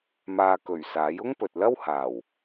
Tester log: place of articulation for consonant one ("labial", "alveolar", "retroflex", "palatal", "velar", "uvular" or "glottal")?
labial